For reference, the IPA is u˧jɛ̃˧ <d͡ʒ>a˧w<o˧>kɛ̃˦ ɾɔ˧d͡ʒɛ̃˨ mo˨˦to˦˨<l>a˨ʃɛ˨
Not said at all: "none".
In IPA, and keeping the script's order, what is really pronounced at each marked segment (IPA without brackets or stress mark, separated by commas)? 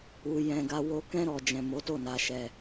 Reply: ɡ, o˧, n